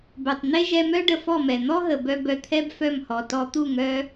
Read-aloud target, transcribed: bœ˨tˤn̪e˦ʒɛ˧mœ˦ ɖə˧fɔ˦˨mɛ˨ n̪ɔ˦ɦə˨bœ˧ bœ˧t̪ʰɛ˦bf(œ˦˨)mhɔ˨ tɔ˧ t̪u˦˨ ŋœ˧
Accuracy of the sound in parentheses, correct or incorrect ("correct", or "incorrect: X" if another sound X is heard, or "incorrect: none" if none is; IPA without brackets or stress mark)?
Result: correct